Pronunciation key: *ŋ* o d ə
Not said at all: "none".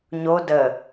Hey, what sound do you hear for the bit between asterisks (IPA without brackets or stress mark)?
ɲ